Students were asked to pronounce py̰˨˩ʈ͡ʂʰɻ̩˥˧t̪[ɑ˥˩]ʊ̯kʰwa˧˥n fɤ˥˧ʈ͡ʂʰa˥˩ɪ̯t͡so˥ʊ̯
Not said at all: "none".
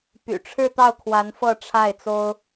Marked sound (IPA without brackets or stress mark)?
ɑ˥˩